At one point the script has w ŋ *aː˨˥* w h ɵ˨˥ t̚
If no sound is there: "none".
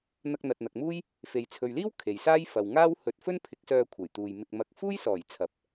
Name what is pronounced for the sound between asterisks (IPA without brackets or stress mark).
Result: aː˥